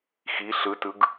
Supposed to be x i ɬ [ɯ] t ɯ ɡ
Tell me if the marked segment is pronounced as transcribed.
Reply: yes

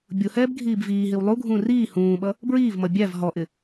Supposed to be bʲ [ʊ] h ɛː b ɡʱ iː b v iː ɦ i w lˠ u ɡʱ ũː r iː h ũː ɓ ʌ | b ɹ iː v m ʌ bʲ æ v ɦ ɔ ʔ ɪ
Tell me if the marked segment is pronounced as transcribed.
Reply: yes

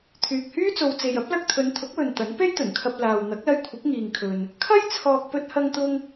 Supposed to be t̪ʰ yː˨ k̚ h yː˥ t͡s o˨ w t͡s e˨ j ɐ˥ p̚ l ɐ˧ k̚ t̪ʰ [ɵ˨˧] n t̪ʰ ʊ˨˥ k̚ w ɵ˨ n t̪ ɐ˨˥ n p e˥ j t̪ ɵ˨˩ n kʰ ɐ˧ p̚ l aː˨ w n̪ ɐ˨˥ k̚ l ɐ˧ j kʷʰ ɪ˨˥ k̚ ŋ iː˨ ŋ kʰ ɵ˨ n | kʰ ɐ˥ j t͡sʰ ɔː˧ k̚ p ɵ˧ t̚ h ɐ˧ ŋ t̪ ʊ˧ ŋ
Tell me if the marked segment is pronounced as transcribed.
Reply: yes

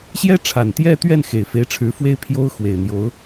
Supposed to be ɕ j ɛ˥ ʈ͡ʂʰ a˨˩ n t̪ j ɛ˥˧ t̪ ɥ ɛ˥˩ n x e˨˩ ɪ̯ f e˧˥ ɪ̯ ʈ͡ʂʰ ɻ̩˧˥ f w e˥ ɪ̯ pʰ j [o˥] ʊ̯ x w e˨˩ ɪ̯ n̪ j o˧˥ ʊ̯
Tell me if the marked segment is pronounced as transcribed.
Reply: yes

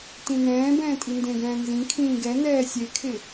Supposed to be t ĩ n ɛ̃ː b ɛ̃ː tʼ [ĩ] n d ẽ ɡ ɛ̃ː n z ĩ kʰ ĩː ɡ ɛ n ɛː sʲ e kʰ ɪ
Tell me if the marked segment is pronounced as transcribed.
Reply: no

